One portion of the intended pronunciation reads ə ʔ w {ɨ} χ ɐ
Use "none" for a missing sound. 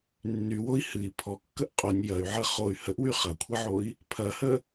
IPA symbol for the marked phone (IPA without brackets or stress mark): y